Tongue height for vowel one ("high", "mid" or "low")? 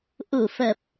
high